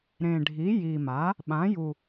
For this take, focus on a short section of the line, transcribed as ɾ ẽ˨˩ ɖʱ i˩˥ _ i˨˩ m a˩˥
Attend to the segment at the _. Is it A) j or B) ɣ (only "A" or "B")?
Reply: A